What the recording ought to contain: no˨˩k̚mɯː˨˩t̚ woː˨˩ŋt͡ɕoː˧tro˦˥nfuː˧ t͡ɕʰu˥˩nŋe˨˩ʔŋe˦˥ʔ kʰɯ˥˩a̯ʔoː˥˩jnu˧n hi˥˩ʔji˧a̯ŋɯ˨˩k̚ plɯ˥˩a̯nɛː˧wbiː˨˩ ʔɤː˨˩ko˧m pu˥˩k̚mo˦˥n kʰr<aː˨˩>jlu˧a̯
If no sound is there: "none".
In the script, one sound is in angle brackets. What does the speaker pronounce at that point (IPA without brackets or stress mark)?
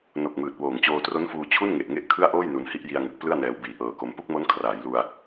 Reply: aː˩˦